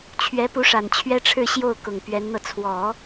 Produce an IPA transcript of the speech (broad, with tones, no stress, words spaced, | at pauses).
t͡ɕʰɥɛ˧˥pu˧˥ʂa˨˩n t͡ɕʰɥɛ˥ʈ͡ʂʰɻ̩˥˧ɕjo˥˩ʊ̯ kʊ˨˩ŋpɥɛ˧˥nn̪ɤ˧ t͡sʰwɔ˨˩˦